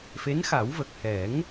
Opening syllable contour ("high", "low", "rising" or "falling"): rising